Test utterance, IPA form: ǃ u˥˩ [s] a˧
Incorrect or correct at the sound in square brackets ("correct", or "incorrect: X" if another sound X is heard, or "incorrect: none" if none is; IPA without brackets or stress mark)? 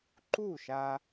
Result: incorrect: ʃ